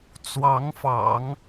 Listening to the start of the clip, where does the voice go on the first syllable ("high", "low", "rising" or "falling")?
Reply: rising